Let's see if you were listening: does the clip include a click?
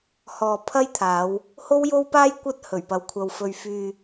no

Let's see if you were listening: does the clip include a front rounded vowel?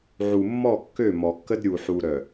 yes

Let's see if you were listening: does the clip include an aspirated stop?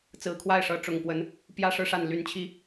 yes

